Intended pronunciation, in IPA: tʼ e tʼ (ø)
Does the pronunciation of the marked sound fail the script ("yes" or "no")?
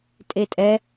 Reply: yes